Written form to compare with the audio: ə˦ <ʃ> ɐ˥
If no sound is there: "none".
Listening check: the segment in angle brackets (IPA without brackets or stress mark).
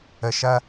ʃ